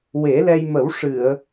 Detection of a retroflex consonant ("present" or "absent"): present